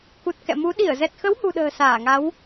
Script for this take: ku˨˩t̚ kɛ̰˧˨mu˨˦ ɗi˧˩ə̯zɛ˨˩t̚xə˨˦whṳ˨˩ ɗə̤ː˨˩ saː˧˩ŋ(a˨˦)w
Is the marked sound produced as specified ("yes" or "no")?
yes